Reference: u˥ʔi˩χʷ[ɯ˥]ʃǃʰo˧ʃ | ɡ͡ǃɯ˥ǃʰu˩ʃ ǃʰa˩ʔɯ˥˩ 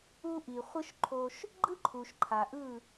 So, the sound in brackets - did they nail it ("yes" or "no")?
yes